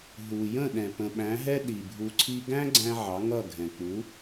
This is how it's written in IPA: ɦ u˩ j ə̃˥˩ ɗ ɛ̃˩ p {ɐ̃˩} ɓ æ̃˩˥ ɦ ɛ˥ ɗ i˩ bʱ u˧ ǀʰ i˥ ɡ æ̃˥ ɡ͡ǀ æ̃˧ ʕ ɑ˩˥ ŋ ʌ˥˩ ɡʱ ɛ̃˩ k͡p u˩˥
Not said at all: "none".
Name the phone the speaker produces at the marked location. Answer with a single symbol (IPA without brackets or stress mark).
ə̃˩